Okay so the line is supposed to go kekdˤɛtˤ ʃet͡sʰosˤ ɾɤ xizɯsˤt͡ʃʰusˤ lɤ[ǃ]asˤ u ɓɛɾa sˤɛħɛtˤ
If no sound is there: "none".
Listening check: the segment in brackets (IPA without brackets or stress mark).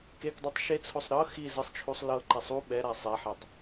ǃ